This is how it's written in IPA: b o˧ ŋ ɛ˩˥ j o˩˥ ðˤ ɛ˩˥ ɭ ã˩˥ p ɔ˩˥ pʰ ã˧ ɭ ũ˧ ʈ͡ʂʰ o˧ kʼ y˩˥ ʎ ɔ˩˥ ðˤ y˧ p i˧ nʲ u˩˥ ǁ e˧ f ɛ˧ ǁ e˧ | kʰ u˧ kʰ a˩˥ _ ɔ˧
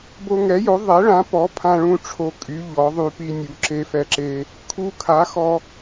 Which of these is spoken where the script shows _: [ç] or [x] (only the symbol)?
x